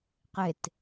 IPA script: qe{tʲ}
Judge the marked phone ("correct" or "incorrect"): incorrect